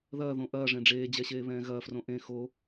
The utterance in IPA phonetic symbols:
ð ɐː ð õ ʔ ɐː ʐ ẽ ɖ͡ʐ eː d͡ʑ ɛ ɕ eː β ɛ̃ː ɣ ɐː f r õ ʔ ẽ x o

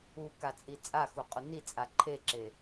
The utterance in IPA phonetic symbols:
u k a t͡sʼ i t͡sʼ a x u qʼ u n i t͡sʼ a ǃʰ e ǁ e

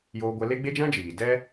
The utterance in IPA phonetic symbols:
j oː˧ ɡʷ ɛ˧ l e˦ ɡ͡b e˦ d͡ʒ ã˦ d͡ʒ iː˨ d ɛ˦

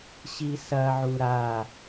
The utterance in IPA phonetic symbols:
ɕ i s ɐ ʕ u ɾ a

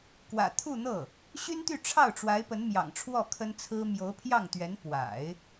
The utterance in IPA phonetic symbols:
k w ä̰˨˩ t̪ʰ u˥˧ n̪ ɤ˥˩ | ɕ y˥ n t̪ y˥˧ ʈ͡ʂʰ ɑ˥˩ ʊ̯ ʈ͡ʂ w a˧˥ ɪ̯ p ə˧˥ n m j ɑ̰˨˩ ŋ ʈ͡ʂʰ w ɔ˥˩ kʰ ə˥ n t͡sʰ ɹ̩˥ m j o˧˥ ʊ̯ pʰ j ɑ˥˩ ŋ t̪ ɥ ɛ˧˥ n p w a̰˨˩˦ ɪ̯

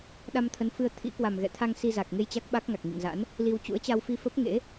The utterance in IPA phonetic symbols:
ɗ a˧ m t̪ʰ ə˨˦ n f ɨ˧ ə̯ t̪ʰ ḭ˧˥ k w a˨˩ m ɣ ɛ̰˧˨ t̪ʰ a˧ ŋ s i˧ z a˨˩ k̚ ŋ e˧ j t͡ɕ a˦˥ k̚ ɓ a˦˥ k̚ ŋ a˨˩ k̚ ŋ ḭ˧˨ ŋ z a̰˧˥ n | l i˧ w t͡ɕ ṵ˧˥ ə̯ t͡ɕ a˧ w f i˧ f ə˦˥ p̚ ŋ ḛ˧˥

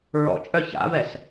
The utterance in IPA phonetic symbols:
ɹ ɔ̰ t͡ʃʼ œ ç a̰ v ɛ s

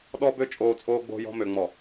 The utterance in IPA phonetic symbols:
ɗ ɔ˦ b ø˦ t͡ʃʼ oː˨ t͡sʼ oː˦ ɡ͡b o̤˦ j ɔ̤˦ m ø˨ ŋ͡m ɔ˨

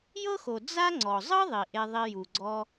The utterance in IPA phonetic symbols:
j ɤ˥ x o˩ d͡z a˥ ŋ͡ǀ ɔ˩ zˤ ɯ˥ ðˤ i˩ ʔ e˧ ðˤ i˧ j u˩ ɡ͡ǀ ɔ˧

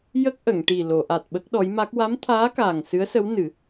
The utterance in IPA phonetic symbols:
j ə˦˥ k̚ ʔ ə˨˩˨ ŋ ʈ i˨˩ l o˨˩˨ ʔ a˨˩ t̚ ɓ ə˦˥ k̚ ɗ ɔ˧˥ j m a˦˥ k̚ w a˧˥ m t̪ʰ aː˧˥ k aː˨˩ ŋ s ɨ˧˥ ə̯ s ə˧˥ w n ɨ˨˩˦

